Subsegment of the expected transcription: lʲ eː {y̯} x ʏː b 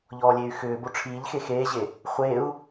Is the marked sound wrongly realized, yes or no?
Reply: no